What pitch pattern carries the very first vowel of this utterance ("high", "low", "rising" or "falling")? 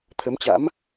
rising